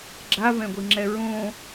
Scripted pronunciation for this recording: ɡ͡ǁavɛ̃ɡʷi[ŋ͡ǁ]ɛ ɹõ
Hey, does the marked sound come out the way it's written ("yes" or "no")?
yes